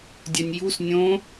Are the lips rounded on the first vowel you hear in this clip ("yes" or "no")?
yes